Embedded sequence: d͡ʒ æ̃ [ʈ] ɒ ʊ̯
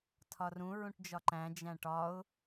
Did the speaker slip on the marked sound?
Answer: no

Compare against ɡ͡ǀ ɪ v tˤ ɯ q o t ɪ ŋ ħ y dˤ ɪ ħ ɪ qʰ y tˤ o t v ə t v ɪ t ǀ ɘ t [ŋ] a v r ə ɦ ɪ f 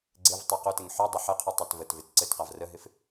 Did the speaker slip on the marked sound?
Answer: yes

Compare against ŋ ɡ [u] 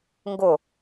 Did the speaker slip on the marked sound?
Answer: yes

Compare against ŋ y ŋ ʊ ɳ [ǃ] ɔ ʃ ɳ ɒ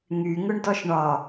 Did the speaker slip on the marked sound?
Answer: yes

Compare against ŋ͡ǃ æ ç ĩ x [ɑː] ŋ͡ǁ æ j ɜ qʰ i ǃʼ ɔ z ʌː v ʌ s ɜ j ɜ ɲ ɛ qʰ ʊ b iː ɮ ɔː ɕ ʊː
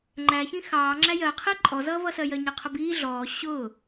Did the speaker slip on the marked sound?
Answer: no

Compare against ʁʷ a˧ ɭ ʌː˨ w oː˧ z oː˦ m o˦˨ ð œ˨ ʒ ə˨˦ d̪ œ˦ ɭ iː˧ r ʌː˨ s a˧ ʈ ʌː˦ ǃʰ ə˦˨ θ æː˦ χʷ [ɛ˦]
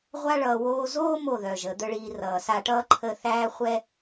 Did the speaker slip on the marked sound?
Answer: no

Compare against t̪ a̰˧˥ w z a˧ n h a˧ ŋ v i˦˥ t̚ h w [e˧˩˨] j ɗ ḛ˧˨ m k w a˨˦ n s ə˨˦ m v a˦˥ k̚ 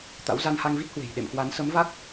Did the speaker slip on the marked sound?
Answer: yes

